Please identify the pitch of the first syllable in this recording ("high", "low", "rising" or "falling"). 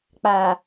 low